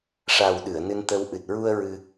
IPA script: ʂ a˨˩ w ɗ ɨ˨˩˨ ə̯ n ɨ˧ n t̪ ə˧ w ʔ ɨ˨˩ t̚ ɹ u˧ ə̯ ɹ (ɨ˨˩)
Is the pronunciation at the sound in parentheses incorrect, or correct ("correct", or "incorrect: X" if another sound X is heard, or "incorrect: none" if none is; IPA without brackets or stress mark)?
incorrect: ɨ˧